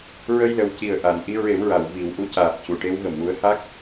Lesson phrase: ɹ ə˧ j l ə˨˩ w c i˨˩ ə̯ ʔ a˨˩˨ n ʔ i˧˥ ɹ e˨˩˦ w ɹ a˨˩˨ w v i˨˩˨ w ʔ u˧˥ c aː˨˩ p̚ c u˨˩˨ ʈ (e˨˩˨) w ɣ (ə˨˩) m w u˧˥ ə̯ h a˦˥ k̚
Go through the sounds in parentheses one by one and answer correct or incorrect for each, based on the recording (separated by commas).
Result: incorrect, correct